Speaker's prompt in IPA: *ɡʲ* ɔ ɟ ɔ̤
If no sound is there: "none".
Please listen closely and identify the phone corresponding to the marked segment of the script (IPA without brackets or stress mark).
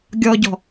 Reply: ɡʲ